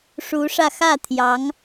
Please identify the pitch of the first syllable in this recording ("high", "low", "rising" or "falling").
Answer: rising